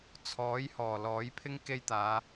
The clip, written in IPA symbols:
t͡sʰ ɔː˨˥ j h ɔː˨˩ l ɔː˨˥ j pʰ ɪ˥ ŋ k e˥ j t̪ aː˨˧

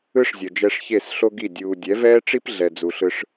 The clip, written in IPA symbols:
ɯ˦ ʂ zʲ ʌ˨ d͡ʒ ɛ˧ ʂ ç e˦˨ s ɬ o˦ ɡ i˦˨ dʲ uː˨ dʲ ɛ˨˦ v ɛː˦ ʈ͡ʂ i˦ p ɮ ɛ˨ d͡z u˨ ɬ ɯ˧ ʂ

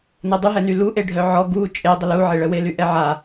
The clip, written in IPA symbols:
n ɛ dˤ y ɦ ɛ n y l u ʔ e ɖʱ œ ʕ ɔ ɡ u t͡ʃʼ e dˤ ə l u ʕ e ɭ ə w e l y ʔ ɛ ʕ a

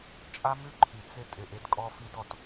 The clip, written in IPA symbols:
t͡ʃʼ a˦ m ʉ˦ ǃʰ i˨ t͡s ɪ˦ tʼ ɪ˨ ʔ ɪ˨˦ d kʼ ɔ˦ f i˦ d ɔ˧ t

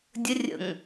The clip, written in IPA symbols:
dʲ ə rʲ ə̰ ŋ

